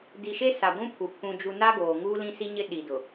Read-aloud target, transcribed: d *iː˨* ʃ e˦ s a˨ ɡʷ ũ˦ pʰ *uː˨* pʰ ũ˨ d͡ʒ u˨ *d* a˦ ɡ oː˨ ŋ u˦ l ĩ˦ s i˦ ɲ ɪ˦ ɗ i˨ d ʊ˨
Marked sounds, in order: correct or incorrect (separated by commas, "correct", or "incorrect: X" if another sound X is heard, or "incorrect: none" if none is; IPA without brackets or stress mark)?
incorrect: i˨, incorrect: u˨, incorrect: n